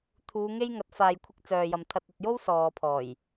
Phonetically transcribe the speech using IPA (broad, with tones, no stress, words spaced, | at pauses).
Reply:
t̪ʰuː˨˧ŋe˥jŋɐ˨˥t̚ faː˨jkʷʰɪ˧k̚ t͡sœː˨jɐ˨m t̪ʰɐ˨t̚ɐ˨t̚jo˥w sɔː˨pʰɔː˨˩j